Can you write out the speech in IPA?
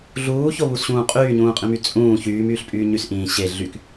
ɮuːçoβusɕũː qʼyːɲũːqʼĩmy t͡sʼũː çyːmyːɬpʼyː ɲysʔĩː ɕe ɮyk

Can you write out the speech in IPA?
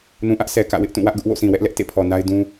nũ˨ʔä˦ʔ sɛ˨kä̰˦˨wɪ˦ʔtũ˦˨ wä˦ʔɡʊ˦ʔ wo̰˦˨sĩ˨wɛ˦ʔlɛ˦ʔ tḛ˦˨pʰɔ˨na˦ɪ̯ dũ˦

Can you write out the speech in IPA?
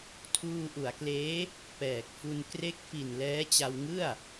tʰuː˧ʔu˩˦a̯kleː˦˥ | pɛː˨˩k̚fu˧n kre˦˥k̚fi˨˩n lɛː˦˥t͡ɕa˧wŋɯ˥˩a̯

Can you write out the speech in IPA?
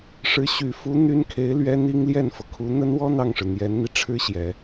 ʂɻ̩˧˥ ɕy˨˩fu˧˥ n̪y˥nkʰe˧˥ɪ̯lɥɛ˥ n̪i˥ŋ ljɛ˥˩nfɤ˩kʰu˧˥ n̪ə˥nwɔ˥ n̪ɑ˥˩ŋʂɻ̩˩ n̪jɛ˧˥nn̪i˧ ʈ͡ʂʰɻ̩˥ɕjɛ˨˩˦

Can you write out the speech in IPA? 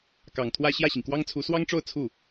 kɑ˨˩ŋt̪ʰwä˥˧ ɕjä˥˩ɕi˩ŋkwɑ˥ŋt͡sʰu˧˥ swɑ˥ŋʈ͡ʂo˥˧ʊ̯ t͡sʰu˥˩

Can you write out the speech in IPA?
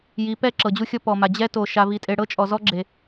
ji˨˦pɛ˦ ǁɤ˨d͡ʑu˦xʲɔ˦ pɔ˨ma˨ d͡ʑɛ˦to˨ ʃa˦vi˦tʼe˦ ɽɤ˦t͡ʃʼɔ˨zɔ˦ɡ͡ǁe˨

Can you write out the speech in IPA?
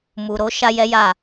mu˨ɾo˨˦ ʃa˦jɛ˦ja˦˨

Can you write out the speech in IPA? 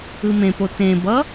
ɯmẽpo tẽbʌ

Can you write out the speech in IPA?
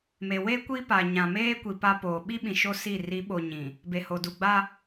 me˨we˦ kʷi˦pa˨ ɲã˨meː˦kʷi˨ pa˦poː˨ ɓi˦ ɓĩ˨ʃo˦ si˦˨ ri˨˦ɓo˨ ɲĩ˨ | be˨ho˨du˨ɡ͡ba˦

